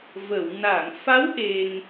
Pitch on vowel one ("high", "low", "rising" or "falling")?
low